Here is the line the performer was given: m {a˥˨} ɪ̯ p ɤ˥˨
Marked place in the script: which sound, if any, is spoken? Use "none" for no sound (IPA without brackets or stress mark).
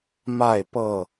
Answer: a˥˨